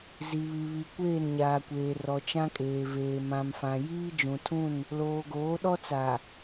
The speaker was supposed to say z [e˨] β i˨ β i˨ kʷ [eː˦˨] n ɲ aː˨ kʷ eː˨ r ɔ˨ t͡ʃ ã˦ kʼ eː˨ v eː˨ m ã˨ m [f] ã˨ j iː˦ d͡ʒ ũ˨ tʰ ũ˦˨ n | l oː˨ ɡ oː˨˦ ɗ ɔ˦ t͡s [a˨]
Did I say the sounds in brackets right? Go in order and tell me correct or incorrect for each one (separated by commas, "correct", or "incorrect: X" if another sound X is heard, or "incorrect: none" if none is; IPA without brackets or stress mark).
incorrect: i˨, correct, correct, correct